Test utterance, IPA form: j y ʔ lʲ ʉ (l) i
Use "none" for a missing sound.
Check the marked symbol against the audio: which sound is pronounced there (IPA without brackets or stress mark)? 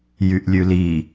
l